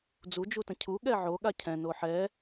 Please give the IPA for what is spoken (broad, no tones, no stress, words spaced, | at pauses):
d͡zud͡ʒutə̃ cʰuɠɛ ʕoɠa cʰɛ̃no ħɛ